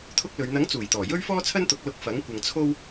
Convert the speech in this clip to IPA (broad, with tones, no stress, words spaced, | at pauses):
t̪ʰʊ˥k̚lɵ˨˧ɥ n̪ɐ˨˥ŋt͡suː˨˩jt̪ɔː˨˩ jɵ˥ɥfɔː˥t͡sʰɐ˥nt̪ʊ˨˥k̚ lʊ˧k̚ fɐ˨˥ŋ kʷɐ˧ŋt͡sʰo˥w